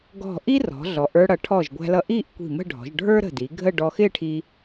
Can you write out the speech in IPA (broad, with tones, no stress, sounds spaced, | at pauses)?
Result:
ɡ ɔ̤˧˩ ʔ i˥ r ɔ̤˩˧ ɮ ɔ˩˧ ʔ ə˞˧ ɽ ʌ˩˧ ʈʰ ɔ˧˩ ʒ ɡʷ æ̤˧ l ʌ˧ ʔ i˥˧ ʔ kʷ i̤˧˩ m ə̤˥˧ ɖʱ ɔ̤˩˧ ʒ ɖʱ ə˞˥ ɾ ə̤˧˩ d i˩˧ ɡʱ ə˥˧ ɖ ɔ˧ x ɪ˥˧ ʈʰ i˧